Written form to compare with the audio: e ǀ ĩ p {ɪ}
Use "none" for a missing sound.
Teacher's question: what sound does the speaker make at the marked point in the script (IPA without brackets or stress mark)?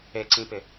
ɪ